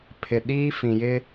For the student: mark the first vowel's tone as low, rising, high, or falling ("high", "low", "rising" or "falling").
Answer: low